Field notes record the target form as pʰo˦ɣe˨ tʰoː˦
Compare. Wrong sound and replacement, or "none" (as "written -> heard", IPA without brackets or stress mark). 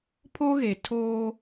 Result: none